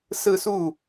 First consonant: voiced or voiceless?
voiceless